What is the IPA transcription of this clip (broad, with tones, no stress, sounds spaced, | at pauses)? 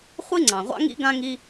χʷ i˦ ŋ͡ǀ ɑ̃˨ ʁʷ ɑ̰˦ ŋ ḭ˦ ɡ ã˦ ŋ i˦